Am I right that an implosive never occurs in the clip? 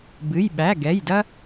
no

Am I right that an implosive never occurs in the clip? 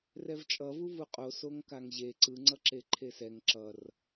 yes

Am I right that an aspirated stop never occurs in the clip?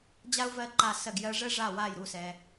yes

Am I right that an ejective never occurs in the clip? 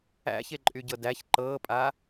no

